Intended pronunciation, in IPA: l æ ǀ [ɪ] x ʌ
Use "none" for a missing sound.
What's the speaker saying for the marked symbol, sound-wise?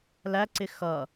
ɪ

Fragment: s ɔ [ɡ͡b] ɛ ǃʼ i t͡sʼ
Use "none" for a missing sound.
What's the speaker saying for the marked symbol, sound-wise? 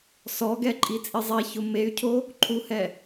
ɡ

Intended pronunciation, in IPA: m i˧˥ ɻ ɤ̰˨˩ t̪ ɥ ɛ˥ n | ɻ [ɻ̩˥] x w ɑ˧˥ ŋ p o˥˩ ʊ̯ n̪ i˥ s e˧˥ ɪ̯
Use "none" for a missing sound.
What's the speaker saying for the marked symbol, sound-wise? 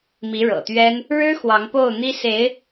ɻ̩˥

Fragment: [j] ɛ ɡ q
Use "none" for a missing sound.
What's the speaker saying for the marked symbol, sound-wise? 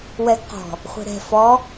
w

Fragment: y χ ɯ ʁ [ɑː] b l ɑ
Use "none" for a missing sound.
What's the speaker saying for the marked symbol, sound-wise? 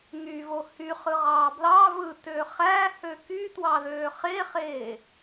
ɑː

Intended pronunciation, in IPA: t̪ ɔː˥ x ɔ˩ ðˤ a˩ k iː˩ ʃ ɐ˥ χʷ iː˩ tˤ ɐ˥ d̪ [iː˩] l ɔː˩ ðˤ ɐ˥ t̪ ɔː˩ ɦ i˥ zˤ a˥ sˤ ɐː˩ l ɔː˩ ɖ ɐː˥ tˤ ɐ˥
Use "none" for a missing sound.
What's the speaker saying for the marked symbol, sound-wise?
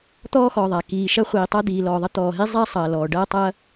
iː˩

